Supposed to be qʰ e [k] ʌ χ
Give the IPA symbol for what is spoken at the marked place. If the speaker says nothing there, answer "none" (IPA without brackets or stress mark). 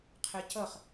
c